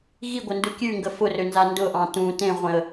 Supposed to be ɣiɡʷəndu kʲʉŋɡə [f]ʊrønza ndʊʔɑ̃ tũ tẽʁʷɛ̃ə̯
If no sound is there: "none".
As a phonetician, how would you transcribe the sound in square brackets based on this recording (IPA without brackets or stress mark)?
f